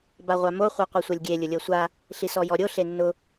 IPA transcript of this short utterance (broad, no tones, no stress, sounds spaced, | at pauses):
b a ʁʷ a m o χʷ ɤ qʷ ɤ sʷ œ lʲ ɡʲ e lʲ ʊ lʲ ɤ sʷ a | ɬ i s ɔ j ɔ ɾʲ o ɬ e nː ʊ